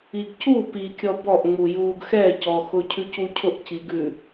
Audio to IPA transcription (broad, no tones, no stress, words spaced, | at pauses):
iɡcu pikʲɔ bɔʔŋ͡mu juːɡxɛ cɔxʊcʰʉ cucʰʊʔciɡʉ